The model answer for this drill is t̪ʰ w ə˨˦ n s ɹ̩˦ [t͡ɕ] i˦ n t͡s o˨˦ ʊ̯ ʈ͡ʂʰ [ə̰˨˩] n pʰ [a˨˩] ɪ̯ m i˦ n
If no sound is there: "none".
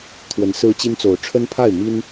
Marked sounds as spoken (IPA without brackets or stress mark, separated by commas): t͡ɕ, ə˦, a˥˨